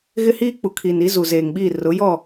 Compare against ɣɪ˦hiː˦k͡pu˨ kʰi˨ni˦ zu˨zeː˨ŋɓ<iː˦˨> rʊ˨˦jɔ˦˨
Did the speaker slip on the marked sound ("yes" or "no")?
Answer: no